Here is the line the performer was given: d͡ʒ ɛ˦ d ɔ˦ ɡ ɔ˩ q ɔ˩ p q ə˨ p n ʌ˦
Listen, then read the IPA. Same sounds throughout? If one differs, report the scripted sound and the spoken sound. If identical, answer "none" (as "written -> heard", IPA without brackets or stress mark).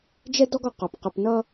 none